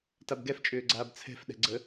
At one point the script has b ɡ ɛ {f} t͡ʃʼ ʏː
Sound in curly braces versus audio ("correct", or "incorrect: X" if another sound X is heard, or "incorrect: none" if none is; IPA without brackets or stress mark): correct